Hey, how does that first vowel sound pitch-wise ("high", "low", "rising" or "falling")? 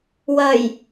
low